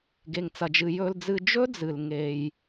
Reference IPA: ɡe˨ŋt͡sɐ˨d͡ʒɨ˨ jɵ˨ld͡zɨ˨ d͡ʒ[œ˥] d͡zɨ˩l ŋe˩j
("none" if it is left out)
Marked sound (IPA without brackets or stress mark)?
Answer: ɵ˥